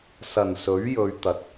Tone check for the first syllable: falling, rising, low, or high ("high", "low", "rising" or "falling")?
low